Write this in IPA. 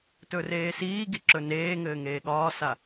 tɵreːsiːɡi ǁɵneːŋɘː ŋeːɠɒːsa

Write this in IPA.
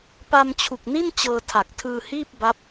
pa˧mt͡ɕʰu˨˩k̚ni˥˩n t͡ɕɤː˧tʰa˨˩k̚tʰɯː˧hiː˥˩p̚ ba˦˥p̚

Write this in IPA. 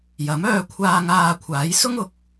jɐ˨˥mœː˧kʷʰaː˧ ŋaː˧kʷʰaː˨˥jsʊ˥ŋʊ˨˥k̚

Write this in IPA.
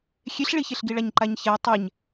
xʲeɬɭiçeɬɡi ɭaɲǃaɲçɛ tˤɛɲ

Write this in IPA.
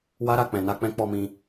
wa˦ɾa˦˨ k͡pɛ̃˨na˧k͡pɛ̃˧ k͡pɔ˧mĩ˧

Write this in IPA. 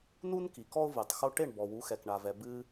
nu˦n ki˨kɔ˦ʊ̯vɨ˨tˤ xo˧ʈe˦˨ɳ bɔ˨wu˨˦xɛ˨k ɳa˨vɛ˨ bɨ˧

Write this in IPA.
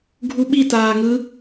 ɡʱuɓi taːŋɯ

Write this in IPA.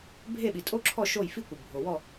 bʱe˦˨ɓi˩tʼo˦˥ǁʰɔ˦˨ ʃo˦˨jfi˦˥kʷɯ˩ bʱo˩ wɔ˦˨

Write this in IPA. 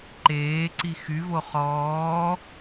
ǃeːǀi xyvo χɔː

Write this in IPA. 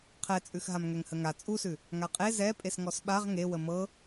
qʰɛt͡sʼʉxɦam ŋɛŋhəŋa t͡sʼusʉ | ŋaqʼe zɛ pʼesŋɔsɓaʁ ŋewə mɤ

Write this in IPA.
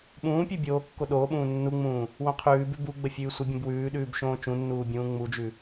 ɓũːpʲʉ bʲoː kːoɗoːɓũː nːuŋ͡mũː | wõqʰʉːbʉ buɡ͡bə fʲʉːsʷəbʲũb wʉːɗʉːb ʃõːt͡ʃũnːuː bʲũːŋ͡mud͡ʒʉ

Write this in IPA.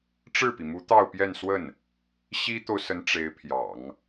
ʈ͡ʂɻ̩˥˩pi˩mu˧˥ t̪ɑ˥˧ʊ̯pjɛ˥˧nswə˥˩n | ɕi˥t̪o˨ʊ̯sə˧˥n ʈ͡ʂe˧˥ɪ̯pʰjɑ̰˨˩˦ŋ

